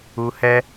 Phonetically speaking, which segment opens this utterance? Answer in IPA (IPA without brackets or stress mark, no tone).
u